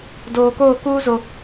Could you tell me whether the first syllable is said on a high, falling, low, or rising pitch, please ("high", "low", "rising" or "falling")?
low